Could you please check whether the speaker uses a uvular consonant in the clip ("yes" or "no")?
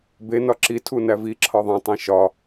no